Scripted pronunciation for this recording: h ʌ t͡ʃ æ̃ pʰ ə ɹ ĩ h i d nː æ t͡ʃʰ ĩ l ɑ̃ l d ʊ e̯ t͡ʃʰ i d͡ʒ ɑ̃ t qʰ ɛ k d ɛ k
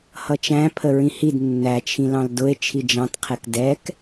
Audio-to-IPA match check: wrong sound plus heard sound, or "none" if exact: none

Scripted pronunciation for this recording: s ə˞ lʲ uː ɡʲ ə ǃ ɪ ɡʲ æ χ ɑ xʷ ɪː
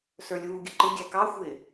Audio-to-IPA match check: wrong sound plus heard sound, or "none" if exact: χ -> k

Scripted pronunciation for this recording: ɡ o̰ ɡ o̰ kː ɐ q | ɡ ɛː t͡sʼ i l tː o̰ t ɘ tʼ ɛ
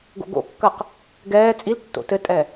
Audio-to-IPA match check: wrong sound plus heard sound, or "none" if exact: none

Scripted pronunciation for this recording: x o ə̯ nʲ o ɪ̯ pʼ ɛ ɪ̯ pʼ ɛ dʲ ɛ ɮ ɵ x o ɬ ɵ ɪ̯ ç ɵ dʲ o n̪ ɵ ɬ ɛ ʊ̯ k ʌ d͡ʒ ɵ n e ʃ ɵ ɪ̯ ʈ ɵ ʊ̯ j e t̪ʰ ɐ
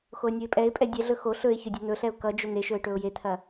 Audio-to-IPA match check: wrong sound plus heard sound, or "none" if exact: none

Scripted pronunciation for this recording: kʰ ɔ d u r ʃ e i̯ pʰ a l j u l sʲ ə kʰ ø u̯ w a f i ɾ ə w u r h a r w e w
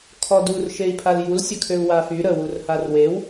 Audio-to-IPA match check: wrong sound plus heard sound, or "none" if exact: i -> y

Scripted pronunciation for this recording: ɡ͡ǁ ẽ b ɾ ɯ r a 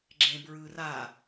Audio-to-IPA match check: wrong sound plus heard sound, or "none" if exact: ɾ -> ɹ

